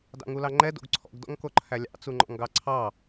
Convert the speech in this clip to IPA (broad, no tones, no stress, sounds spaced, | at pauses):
d ɑ̰ ŋ u l ɑ ŋ͡ǃ ɛ d o̰ ɡ ǀʰ ɔ̰ ɡ d ɔ̰ ŋ k o ǃʰ æ lʲ ɑ̰ t͡s u ŋ͡ǃ ɔ̰ ŋ ɡ ɑ ǀʰ ɑ